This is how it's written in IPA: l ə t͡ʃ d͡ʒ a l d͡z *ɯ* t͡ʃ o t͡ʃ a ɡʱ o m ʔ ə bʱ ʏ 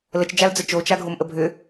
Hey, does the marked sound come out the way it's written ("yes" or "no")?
no